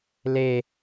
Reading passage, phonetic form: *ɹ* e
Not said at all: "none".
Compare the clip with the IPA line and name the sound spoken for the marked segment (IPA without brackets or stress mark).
l